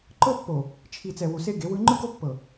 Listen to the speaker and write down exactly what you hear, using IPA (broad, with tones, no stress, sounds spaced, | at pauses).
ǃ ɤ˦ pː o˨ | t͡ʃʰ i˨ t͡s ɛ˨ w u˨ s e˦ ɡ e˨˦ w ɯ˦ ŋ͡ǃ ɯ˦ ɡ o˦ pː ɤ˨